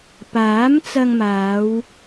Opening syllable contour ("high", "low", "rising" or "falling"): rising